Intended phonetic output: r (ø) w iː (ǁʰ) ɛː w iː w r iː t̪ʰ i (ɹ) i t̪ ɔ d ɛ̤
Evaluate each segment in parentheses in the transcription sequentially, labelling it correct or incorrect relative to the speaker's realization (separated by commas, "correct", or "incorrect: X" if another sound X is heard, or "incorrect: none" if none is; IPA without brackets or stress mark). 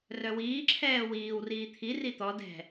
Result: incorrect: œ, correct, incorrect: r